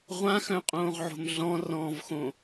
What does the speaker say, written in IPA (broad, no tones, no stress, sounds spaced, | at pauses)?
ʁʷ ã x œ̃ qʼ õː ʁ ʕ o̤ m ɮ ɔ̃ r ɔ̃ː v x õ